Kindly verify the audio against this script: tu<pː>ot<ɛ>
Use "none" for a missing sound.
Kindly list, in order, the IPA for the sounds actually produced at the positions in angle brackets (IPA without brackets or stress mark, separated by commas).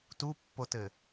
pː, ɘ